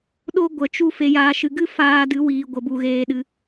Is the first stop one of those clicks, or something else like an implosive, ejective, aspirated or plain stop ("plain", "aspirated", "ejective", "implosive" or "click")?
implosive